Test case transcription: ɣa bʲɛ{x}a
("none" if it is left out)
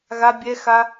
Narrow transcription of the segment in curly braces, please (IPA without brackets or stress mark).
x